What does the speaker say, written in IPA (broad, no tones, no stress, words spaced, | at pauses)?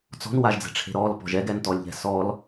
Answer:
t͡sɔ̤nwaʒd͡zɛ̤ʈ͡ʂʰe̤ ɾɔlpɔ̤ ʒɛɡɛntɔlʲʎɛ̤ sɔl